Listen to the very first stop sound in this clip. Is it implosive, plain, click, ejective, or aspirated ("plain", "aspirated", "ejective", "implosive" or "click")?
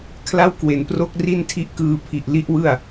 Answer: aspirated